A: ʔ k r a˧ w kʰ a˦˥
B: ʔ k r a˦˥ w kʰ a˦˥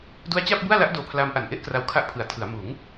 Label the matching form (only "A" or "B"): A